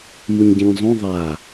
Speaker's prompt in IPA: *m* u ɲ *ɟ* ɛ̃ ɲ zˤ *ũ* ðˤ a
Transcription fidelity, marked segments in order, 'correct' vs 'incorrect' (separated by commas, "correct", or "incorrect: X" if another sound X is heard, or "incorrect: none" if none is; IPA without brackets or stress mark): correct, correct, correct